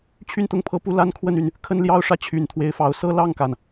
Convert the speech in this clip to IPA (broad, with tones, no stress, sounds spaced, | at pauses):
t͡ɕʰ y˥˧ n t̪ ʊ˥˩ ŋ pʰ ɤ˧˥ p u˥˩ l a˥ n kʰ w ə˥˩ n y˩ n | kʰ ə˥˧ n l j ɑ˥˧ ʊ̯ ʂ ä˥˩ t͡ɕʰ y˨˩ n t̪ʰ w e˧˥ ɪ̯ f ɑ˧˥ ʊ̯ s ɤ˥ l ɑ˥˩ ŋ k a˩ n